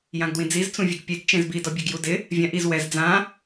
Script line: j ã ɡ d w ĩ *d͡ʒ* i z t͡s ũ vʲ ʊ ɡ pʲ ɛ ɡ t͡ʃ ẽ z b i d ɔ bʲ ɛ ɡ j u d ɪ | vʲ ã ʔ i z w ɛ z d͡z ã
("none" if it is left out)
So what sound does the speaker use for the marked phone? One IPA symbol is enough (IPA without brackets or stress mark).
d͡z